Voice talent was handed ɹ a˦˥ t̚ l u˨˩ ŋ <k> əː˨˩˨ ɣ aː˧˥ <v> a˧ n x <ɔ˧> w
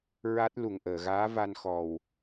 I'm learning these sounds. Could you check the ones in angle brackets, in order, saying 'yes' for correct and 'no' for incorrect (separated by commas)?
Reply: no, yes, no